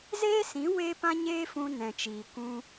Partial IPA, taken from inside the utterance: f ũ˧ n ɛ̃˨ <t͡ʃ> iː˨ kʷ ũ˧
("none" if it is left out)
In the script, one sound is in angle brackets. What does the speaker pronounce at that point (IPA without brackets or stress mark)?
t͡ʃ